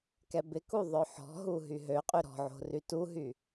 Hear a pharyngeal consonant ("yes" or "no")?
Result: yes